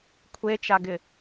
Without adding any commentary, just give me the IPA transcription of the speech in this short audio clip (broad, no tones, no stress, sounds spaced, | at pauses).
kʷʰ e t͡ʃ a ɡ ɪ